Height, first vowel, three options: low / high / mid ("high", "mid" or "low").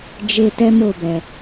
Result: mid